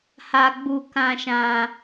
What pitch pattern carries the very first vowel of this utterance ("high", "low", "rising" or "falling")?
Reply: high